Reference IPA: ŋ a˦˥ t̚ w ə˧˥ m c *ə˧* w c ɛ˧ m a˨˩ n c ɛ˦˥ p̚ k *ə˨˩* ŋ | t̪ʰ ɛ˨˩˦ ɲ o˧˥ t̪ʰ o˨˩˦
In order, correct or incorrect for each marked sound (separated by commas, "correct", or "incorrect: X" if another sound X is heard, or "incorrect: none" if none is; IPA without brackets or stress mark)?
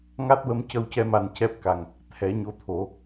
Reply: correct, incorrect: a˨˩